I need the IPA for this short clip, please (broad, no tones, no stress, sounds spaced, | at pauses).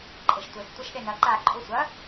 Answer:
ǃʼ e ʃ tʷ e x tʷ ɐ ʃ ɗ e n ɐ ǃ a ǃʼ u sʷ ɐ